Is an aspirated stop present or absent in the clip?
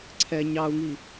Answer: present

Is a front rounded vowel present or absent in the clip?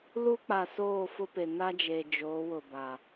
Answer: absent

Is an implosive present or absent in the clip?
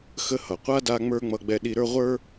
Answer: present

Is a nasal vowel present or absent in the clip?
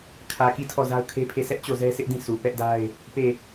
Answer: present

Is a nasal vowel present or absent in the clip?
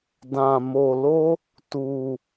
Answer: present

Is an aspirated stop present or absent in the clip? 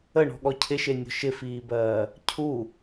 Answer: present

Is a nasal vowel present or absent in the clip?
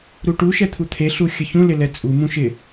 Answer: present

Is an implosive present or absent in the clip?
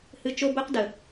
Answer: absent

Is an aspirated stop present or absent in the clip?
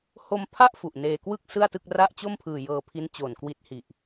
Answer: present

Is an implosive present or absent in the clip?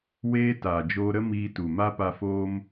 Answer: absent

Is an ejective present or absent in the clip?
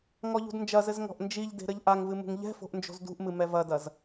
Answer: absent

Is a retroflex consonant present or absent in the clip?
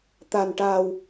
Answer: present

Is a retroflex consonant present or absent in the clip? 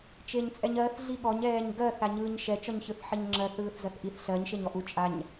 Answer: absent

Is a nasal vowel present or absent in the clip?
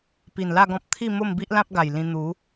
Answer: present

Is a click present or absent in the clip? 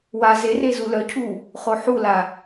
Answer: absent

